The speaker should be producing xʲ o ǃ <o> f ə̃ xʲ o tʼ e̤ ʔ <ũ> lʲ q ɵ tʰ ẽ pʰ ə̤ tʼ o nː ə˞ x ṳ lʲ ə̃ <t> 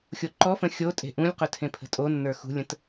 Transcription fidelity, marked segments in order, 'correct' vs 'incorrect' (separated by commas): incorrect, correct, correct